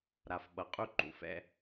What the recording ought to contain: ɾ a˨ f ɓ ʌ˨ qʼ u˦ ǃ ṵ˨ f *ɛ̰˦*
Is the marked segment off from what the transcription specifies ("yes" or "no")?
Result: no